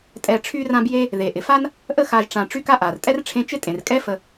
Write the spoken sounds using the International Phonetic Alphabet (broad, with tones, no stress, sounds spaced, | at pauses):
tʼ ɛ˨ ʈ͡ʂʰ y˦ r ã˦ b j e˦ | ð e˩ ʔ ɪ˩ f a˥ n | ʔ ə˦ x a˨ ʒ ʈ͡ʂ ã˨ ʈ͡ʂ y˥ k a˥ ʔ a˩ r tʼ ɛ˥ r ʈ͡ʂʰ ẽ˦ t͡ʃ ɪ˥ tʼ ẽ˩ r kʼ ɛ˥ f ə˨